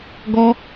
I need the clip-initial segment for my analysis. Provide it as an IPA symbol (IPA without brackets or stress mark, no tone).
ɡ